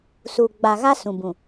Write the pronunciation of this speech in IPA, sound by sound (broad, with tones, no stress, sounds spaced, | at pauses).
s uː˨ ɡ͡b a˨ ɣ a˦ s ũ˨ b ũ˨